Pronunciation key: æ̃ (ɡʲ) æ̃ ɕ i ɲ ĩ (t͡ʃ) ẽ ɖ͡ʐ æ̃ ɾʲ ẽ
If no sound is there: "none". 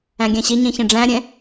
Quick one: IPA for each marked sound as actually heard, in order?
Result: ɡʲ, ç

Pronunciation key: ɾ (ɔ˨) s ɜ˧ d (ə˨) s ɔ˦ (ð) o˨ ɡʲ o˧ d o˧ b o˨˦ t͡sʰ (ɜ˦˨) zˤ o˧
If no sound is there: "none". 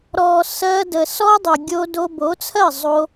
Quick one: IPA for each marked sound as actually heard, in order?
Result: ɔ˨, ə˨, dˤ, ɜ˦˨

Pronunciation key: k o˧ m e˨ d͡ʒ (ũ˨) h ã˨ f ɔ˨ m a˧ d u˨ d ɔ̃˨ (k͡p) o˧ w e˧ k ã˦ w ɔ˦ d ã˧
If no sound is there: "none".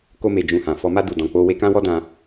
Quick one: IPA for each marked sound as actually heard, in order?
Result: ũ˧, k͡p

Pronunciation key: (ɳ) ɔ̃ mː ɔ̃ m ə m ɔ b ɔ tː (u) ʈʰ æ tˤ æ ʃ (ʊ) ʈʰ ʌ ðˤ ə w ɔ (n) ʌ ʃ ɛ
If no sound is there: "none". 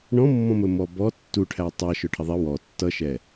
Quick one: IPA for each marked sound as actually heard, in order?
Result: ɳ, u, ʊ, tː

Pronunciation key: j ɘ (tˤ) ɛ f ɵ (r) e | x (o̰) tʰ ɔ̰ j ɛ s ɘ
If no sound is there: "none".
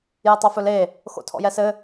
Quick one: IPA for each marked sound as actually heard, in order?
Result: tˤ, l, o̰

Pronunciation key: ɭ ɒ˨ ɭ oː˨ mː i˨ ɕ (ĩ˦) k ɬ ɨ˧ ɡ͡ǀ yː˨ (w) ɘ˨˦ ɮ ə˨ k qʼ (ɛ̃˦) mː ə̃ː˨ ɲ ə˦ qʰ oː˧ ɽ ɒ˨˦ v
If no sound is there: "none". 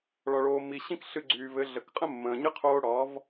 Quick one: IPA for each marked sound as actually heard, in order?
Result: ĩ˦, v, ə̃˦

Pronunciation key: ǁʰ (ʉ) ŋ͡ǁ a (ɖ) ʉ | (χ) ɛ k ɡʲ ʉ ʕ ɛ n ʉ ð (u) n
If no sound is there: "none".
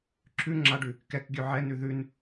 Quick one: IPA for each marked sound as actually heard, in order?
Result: ʉ, ɖ, k, ʉ

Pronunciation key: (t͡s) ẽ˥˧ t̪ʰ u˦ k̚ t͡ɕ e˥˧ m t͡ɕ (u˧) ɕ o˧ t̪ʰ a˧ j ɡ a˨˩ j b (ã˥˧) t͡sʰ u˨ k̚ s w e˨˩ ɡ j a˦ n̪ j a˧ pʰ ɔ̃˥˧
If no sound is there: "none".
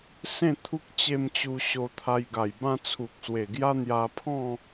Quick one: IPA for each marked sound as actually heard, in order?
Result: s, u˧, ã˥˧

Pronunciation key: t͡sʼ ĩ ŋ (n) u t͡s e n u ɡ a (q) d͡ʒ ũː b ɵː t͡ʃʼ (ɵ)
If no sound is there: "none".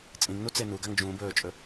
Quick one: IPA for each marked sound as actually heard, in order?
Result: n, ŋ, ɵ

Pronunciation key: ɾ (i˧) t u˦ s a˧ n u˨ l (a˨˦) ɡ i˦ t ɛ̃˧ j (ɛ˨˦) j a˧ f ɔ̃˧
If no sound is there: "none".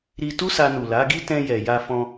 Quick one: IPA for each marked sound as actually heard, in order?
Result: i˧, a˨˦, ɛ˨

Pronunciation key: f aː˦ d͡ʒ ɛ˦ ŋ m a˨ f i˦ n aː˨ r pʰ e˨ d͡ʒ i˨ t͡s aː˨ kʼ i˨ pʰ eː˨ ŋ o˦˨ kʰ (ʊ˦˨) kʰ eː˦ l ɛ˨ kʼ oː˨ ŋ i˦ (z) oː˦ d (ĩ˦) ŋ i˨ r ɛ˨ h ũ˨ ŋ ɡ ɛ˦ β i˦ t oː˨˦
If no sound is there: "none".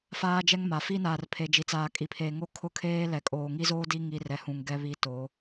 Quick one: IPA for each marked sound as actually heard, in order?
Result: ʊ˦˨, z, i˦

